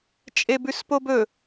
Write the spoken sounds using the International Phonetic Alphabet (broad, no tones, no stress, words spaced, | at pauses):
t͡ʃʼebʉspobɵ